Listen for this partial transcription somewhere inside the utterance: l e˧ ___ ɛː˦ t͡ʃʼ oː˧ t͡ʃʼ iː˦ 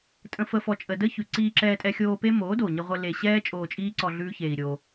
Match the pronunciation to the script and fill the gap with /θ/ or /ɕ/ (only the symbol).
ɕ